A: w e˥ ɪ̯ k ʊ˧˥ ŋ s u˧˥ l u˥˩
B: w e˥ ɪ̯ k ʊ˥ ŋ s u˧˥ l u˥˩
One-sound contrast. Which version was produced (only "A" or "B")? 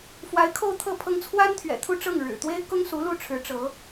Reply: B